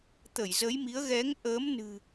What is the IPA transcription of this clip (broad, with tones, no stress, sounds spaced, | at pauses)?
t̪ ə˧˩ j z ə˨˦ j m i˨˦ ə̯ ɣ ɛ˨˦ ŋ ʔ əː˨˦ m n ɨ̤˨˩